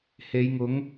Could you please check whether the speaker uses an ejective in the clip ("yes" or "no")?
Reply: no